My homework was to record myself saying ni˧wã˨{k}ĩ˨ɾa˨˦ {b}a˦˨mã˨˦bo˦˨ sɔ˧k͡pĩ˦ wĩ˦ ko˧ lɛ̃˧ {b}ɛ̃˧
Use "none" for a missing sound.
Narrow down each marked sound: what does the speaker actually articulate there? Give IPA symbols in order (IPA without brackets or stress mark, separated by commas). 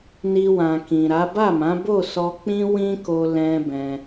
k, b, b